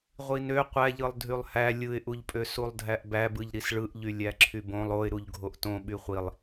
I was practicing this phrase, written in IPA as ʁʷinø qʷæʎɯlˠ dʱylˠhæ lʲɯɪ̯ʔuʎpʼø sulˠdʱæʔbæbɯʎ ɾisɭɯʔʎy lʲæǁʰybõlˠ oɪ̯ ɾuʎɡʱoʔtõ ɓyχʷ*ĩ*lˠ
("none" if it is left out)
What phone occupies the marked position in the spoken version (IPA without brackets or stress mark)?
i